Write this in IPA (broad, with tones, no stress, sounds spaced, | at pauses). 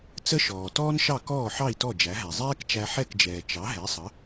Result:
t͡s ə˥ ʃ ɔː˩ t ɔː˥ n ʃ ɑ˥˩ k ɔː˥˩ ħ ɑ˥˩ i̯ t ɔ˥˩ d͡ʒ æ˩˥ ɦ æ˩ zˤ ɛː˥ k t͡ʃ æ˧ ħ ɛ˥˩ k d͡ʒ ɛː˩ t͡ʃ ɑ˩˥ ɦ ɛ˩˥ sˤ ə˩˥